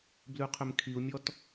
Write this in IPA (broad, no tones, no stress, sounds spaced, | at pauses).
b l ʉ qʰ ʏ m kʰ i u̯ mʲ ɔ t